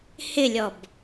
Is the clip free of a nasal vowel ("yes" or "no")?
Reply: yes